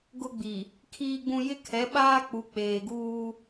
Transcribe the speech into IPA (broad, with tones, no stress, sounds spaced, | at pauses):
ɡ ʊ˦ ɡ͡b i˨ | kʰ iː˦ ɡ͡b ũ˦ j ɪ˦ kʰ ɛ˨˦ ɓ aː˦ k͡p u˨ k͡p eː˨ ɡ uː˦